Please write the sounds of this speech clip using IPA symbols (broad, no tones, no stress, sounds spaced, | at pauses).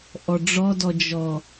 ʔ ɔ ɖ͡ʐ ɔ d ɔ d͡ʒ ɔ